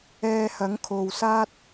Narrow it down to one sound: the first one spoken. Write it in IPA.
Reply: ɛː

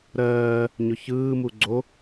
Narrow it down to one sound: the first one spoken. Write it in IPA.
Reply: ɾ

